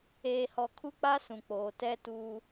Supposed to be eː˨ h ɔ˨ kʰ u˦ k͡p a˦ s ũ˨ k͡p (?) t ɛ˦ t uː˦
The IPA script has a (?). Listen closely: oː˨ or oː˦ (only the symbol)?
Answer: oː˨